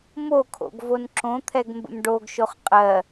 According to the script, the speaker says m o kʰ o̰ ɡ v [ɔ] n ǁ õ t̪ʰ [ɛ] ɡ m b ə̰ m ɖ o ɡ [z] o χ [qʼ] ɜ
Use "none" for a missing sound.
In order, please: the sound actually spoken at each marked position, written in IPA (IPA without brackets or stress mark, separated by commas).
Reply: o, ɛ, ʃ, qʼ